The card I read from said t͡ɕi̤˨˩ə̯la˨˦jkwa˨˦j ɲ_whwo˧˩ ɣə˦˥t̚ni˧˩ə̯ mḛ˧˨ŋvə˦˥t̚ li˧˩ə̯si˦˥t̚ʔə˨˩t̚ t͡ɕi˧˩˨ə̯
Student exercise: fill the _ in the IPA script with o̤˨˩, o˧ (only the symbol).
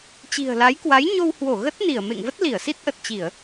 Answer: o˧